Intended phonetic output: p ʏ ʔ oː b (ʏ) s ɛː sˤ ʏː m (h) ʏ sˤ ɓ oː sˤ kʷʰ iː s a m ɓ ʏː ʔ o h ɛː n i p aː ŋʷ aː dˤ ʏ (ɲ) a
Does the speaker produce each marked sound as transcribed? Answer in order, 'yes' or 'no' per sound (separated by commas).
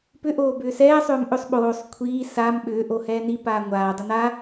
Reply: no, no, no